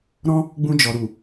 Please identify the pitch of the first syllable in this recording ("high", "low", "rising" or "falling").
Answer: high